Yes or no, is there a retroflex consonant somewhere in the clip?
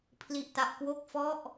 no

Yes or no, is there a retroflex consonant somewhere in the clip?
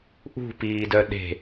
no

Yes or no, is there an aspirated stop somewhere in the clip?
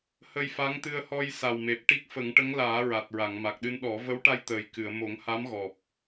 no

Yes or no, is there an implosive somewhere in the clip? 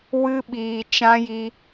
yes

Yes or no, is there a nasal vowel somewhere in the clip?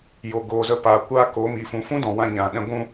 yes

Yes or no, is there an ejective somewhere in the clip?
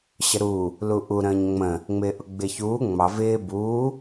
no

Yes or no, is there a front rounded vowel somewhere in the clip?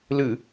no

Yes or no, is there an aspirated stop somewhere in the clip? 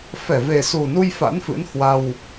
no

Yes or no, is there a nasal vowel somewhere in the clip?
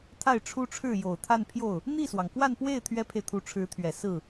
no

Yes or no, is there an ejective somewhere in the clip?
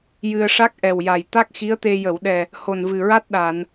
no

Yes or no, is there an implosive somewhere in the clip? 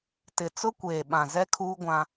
yes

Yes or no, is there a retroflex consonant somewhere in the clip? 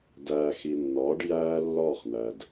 yes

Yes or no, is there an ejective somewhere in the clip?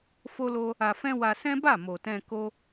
no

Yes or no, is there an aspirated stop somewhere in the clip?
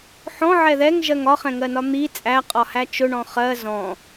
no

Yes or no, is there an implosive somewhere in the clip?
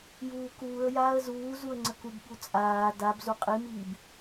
yes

